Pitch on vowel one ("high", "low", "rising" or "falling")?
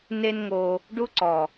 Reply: high